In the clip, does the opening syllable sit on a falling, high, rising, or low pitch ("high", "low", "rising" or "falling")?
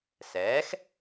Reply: rising